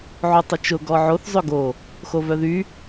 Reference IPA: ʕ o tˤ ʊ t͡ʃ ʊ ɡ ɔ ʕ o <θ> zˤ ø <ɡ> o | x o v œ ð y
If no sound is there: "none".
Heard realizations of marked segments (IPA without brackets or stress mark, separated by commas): θ, ɡ